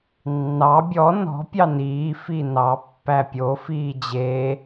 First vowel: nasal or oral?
oral